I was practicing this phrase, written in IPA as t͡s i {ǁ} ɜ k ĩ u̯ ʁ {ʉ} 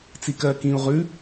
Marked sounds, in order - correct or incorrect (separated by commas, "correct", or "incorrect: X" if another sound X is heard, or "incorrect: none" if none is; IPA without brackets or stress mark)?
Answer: incorrect: k, correct